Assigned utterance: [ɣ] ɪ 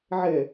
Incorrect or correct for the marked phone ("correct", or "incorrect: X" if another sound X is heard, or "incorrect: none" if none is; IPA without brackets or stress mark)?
incorrect: ʕ